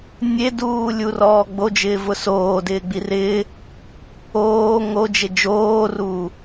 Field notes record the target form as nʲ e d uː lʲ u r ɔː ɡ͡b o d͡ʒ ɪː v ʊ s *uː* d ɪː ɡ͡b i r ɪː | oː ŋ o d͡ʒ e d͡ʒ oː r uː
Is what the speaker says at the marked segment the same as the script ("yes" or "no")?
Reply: no